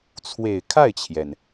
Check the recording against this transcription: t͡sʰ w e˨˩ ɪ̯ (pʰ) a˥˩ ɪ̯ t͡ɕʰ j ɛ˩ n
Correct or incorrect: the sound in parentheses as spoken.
incorrect: kʰ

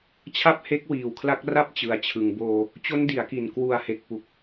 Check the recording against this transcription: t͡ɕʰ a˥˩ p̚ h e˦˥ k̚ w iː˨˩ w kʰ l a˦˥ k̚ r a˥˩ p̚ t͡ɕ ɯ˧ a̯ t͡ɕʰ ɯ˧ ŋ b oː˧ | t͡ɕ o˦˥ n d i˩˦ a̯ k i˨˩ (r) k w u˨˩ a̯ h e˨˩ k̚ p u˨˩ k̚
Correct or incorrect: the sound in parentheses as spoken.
incorrect: n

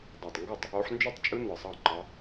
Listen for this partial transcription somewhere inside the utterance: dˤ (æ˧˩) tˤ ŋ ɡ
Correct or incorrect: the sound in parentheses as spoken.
correct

